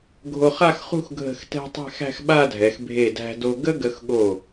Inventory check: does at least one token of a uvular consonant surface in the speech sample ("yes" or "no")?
yes